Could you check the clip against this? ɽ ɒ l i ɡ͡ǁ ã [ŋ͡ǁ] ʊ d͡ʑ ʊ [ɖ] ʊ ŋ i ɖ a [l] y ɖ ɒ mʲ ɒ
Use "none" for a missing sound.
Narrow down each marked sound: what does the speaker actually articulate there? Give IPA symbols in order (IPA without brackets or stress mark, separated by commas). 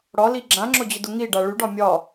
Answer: ŋ͡ǁ, d, ɭ